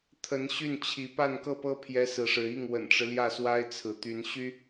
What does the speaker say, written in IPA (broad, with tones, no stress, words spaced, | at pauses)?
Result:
t̪ʰə˧˥nɕy˥˩nt͡ɕʰi˧˥ pa˥˧nkɤ˥˩pɤ˥ pʰjɛ˥sɹ̩˧˥ʂɻ̩˧˥ i˥˩ŋ wə̰˨˩nʈ͡ʂɻ̩˦ljä˥˩swa˥ɪ̯ t͡sʰɹ̩˧˥t̪y˧˥n ɕy˥